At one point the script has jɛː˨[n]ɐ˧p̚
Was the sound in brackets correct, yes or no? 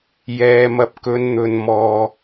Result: no